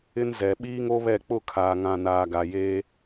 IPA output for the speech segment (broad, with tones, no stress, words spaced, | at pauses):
ɪ˦nzɛ˨ ɓiː˦ŋo˦βɛ˦˨ k͡pʊ˦˨kʰaː˨ŋã˨naː˨ ɡa˨ jeː˦